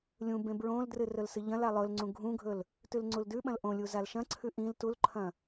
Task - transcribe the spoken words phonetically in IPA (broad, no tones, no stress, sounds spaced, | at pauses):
lʲ ũ b ẽ b ɹ õ l d r ɨ r ɵ l s ɨ ʎ ɐ̃ l a lˠ ɵ l ŋ͡ǀ ũ ɡʱ ũ ɡʱ ɵ l | t ʉ l ŋ͡ǀ u l d ʉ ɓ ɐ̃ l ʔ õ lʲ u z a l ʃ ɐ̃ ǀʰ ʉ ʔ ĩ l t u l ǃʰ ɐ̃